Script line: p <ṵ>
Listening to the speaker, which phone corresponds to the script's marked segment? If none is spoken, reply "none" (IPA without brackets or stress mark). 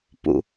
ṵ